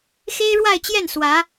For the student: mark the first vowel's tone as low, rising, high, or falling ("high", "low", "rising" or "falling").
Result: high